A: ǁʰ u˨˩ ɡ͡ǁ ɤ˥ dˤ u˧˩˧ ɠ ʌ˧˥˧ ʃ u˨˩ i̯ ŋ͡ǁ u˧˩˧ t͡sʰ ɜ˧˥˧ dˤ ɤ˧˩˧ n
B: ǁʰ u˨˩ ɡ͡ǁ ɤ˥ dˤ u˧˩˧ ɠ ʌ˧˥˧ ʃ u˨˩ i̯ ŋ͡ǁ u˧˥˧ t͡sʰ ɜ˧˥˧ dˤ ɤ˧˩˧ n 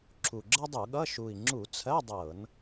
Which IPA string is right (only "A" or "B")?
A